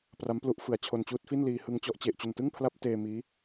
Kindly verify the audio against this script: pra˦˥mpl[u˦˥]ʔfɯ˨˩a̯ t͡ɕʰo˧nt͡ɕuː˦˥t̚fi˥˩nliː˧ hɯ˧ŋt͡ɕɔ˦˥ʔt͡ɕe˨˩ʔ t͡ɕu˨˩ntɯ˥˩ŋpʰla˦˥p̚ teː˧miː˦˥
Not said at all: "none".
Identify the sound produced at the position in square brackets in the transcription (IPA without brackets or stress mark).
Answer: u˦˥